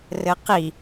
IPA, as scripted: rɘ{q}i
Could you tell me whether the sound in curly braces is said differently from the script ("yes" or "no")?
no